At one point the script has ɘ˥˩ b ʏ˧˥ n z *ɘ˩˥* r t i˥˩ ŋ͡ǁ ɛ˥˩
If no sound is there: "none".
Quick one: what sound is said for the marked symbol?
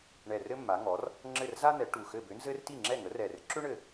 ɘ˥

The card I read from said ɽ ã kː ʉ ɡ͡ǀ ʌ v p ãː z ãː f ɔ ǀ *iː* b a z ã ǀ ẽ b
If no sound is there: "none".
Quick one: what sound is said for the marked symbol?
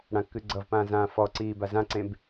iː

